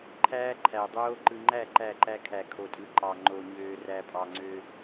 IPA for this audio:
ǃʰ æː˦ ǃʰ æ˨ dˤ oː˦ ǃ ɯ˨ ŋ͡ǃ æ˦˨ ǃ æ˦˨ ǃ æ˦ kʰ æ˨ kʰ o˨ tʼ ɯ˨ ǃ ɑ˨ ŋ͡ǃ o˨ ɲ øː˨ r æ˨ pʼ ɑ˨ ŋ͡ǀ ø˦

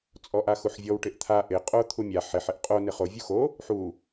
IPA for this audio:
t͡sʼ ɔ ʔ a x u ħ vʲ ɔ w ʈ ɪ ʔ t̪ʰ a ʔ ɪ qʼ o t̪ʰ u mʲ a ħ ɪ ħ ɪ ʔ qʼ o n ɪ χ o vʲ u x o | ħ u

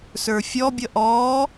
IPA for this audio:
s ə˞ fʲ ɔ bʲ ʌ ʔ ɔ

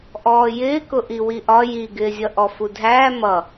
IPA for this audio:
ʔ ɔː j ɪː k ʊ ʔ i w i ʔ ɒ j i ɡ ɪː zʲ ʌ ʔ ɔ f u dʱ æː m ʌ

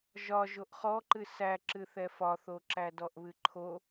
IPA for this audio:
ʒ ɒ ʒ o ʔ χ ɔ ǃ ɨ s æ ǁ ɨ θ ɛ f ɒ θ o ǁ æ d ɔ ʔ β ɨ ǃʰ o

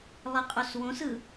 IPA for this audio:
lˠ i qʼ u s w õ s ɯ

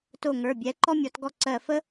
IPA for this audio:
t o˧˩ ŋ ə˞˩˧˩ bʲ ɛ˩˧˩ ǃ ɔ˥ mʲ ɔ˨˦ t ɡ ɔ˥˩ ǀ ɜ˧˩ f ə˥

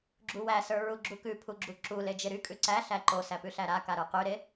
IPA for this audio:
ɡ͡ǁ u w æ s ə˞ ɹ u ɡ͡ǁ u k ʉ pʰ u ɡ͡ǁ u ǁ u l e d͡ʒ e ɾ y kʼ ʉ ǀ æ ɬ æ ǃ o s æ p ʉ ɬ æ ɾ a k a ɾ ə˞ q y ɾ e

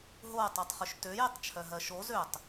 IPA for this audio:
ɦ o tˤ u tˤ χ ʏ ʃ t ø j e tˤ t͡ʃʰ œ ɦ ɜ ʃ o z ø tˤ

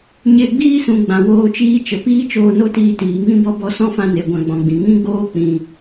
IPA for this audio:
ɲ e˧ ɡ͡b iː˦ s ũ˨ ɡ͡b ã˨ w oː˧ t͡ʃ iː˦ t͡ʃ ə˨ p iː˦ t͡ʃ oː˧ n o˦ t iː˧ t iː˨ ŋ ĩ˦ b ɔ˦ b ɔ˧ s ɔ̃˦ f ã˧ n e˨ ɡʷ ã˧ ɡ͡b ɔ̃˨ ɡ͡b ĩ˨ ŋ ĩ˦ ɡ͡b oː˦ k͡p ĩ˨

